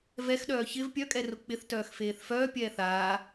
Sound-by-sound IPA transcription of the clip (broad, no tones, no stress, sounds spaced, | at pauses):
v ɛ x ɗ œː ç ɪ v pʲ œ kʼ ɛ r ʊ k͡p ɪ θ t œː x f eː θ f œː pʲ ɛː θ aː